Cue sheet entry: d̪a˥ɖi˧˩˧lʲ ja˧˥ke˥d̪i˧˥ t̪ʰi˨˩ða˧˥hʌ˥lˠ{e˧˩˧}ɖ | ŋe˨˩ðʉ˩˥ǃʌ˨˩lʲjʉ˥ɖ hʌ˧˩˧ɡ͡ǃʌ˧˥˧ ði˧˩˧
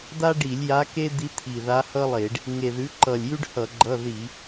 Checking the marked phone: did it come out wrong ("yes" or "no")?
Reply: no